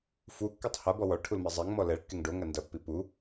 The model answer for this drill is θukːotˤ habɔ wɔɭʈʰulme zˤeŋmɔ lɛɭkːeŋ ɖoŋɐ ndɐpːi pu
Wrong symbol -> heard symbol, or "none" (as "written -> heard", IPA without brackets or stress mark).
θ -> f